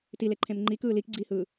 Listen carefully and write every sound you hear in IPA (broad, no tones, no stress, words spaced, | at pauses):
tileǃʰẽm ŋ͡ǃikɯː likɡ͡ǀiːhɯː